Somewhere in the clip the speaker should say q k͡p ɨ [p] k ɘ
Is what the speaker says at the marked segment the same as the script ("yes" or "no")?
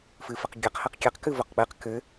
no